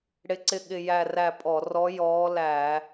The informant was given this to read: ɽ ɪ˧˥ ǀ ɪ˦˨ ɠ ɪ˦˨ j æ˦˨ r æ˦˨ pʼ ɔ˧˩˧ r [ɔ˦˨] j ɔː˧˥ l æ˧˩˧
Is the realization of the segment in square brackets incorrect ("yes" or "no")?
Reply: yes